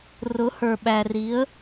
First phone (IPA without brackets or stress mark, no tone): r